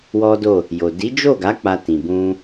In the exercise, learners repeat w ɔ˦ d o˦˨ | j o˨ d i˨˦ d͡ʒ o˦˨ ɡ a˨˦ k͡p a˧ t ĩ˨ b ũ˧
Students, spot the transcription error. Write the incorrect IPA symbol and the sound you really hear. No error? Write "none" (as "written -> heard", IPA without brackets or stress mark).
none